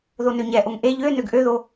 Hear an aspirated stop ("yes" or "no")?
no